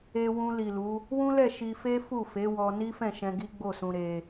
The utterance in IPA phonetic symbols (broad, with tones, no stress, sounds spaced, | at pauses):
e˧ w ũ˧ l i˨ l u˨˦ | w ũ˦ l ɛ˦˨ ʃ i˧ f e˦ f u˦˨ f e˨˦ w ɔ˧ n i˦ f ɛ̃˦˨ ʃ ɛ̃˧ ɡ i˦ ɡ͡b o˦˨ s ũ˧ ɾ e˧